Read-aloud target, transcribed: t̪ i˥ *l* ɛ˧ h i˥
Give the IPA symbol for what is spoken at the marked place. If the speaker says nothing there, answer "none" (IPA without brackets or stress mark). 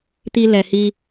l